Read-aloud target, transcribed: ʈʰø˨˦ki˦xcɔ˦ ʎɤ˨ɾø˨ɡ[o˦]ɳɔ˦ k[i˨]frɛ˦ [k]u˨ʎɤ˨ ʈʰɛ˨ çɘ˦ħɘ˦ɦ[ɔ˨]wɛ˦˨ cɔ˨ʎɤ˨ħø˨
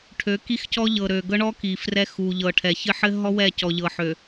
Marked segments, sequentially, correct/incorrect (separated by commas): incorrect, correct, incorrect, incorrect